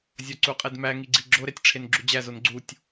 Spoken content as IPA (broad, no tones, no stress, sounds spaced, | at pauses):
zʲ ɒ ǀ u qʼ e d m æ ŋ i ɡ͡ǀ i ɡ͡ǁ o ɾ e tʲ ʈ͡ʂʰ e n ɡ͡ǁ u d͡ʑ æ z o n ɡ͡ǀ u tʲ